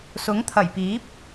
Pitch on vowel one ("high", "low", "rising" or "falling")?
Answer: rising